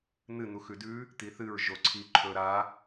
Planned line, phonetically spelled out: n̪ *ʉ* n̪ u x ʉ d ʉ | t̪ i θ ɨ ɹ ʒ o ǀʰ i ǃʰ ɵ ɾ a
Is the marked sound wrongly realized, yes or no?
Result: yes